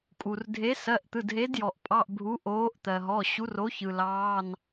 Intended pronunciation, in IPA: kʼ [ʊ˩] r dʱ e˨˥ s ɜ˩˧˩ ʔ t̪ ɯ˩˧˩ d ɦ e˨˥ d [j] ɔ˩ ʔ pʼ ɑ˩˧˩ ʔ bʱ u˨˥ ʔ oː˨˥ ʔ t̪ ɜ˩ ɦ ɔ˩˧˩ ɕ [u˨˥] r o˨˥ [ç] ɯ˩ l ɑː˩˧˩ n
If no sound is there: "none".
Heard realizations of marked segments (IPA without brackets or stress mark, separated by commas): u˩, j, u˨˥, ç